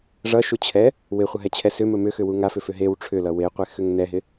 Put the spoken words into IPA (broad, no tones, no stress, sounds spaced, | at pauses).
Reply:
ʐ ʌ ʃ u t͡ɕʰ ɛ | w ɪ χʷ ʌ ɦ ɛ t͡ɕʰ ɛ s ʏ m ɵ m ʏ x ʏ w u ŋ a f ʏ f ʏ ɦ e w ʈ͡ʂʰ ʏ l ʌ w e qʷ ɛ x ʏ ŋ n ɛ ɦ ɪ